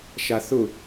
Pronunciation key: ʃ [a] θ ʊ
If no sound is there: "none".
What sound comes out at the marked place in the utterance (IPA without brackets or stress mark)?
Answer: a